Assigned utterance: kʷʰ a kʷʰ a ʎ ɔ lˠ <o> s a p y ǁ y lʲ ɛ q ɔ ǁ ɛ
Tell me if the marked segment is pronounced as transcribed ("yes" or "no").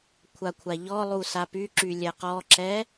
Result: no